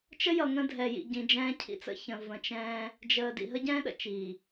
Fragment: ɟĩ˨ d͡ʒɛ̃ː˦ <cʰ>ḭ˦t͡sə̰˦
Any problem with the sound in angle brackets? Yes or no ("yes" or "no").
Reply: no